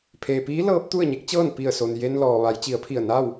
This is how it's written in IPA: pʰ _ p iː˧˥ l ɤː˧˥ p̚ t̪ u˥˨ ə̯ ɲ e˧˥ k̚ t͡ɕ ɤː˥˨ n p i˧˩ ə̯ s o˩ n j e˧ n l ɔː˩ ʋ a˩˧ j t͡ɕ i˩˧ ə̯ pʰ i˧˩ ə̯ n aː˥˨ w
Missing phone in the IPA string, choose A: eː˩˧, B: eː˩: B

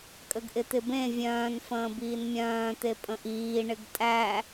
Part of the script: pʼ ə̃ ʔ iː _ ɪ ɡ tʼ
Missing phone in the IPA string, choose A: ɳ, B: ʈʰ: A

